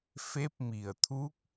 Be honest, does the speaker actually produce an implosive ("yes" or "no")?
no